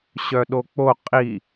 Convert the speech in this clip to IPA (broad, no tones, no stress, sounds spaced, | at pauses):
ɕ œ ɗ o k͡p o qʼ i